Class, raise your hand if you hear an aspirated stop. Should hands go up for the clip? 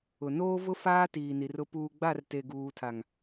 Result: yes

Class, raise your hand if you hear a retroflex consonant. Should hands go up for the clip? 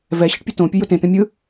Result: yes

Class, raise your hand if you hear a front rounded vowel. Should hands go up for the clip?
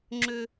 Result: yes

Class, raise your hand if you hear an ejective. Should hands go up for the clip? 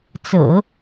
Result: no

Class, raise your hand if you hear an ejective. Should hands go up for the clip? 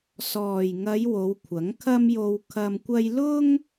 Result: no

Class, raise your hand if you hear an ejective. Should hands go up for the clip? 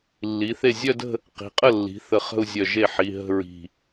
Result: yes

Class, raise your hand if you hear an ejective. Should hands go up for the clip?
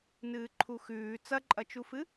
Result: yes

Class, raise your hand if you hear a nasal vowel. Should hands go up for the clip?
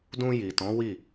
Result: yes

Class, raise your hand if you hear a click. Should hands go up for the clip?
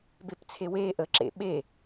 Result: yes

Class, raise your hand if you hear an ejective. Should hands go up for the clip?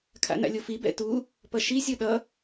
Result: no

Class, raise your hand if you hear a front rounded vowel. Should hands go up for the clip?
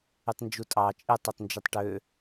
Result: yes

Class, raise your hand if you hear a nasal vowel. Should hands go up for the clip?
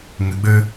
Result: no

